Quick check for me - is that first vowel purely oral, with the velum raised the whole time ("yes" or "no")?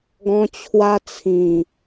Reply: no